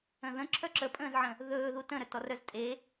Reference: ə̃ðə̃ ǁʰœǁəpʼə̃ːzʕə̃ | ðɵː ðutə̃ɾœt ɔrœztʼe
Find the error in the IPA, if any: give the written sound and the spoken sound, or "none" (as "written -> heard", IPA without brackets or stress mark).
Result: none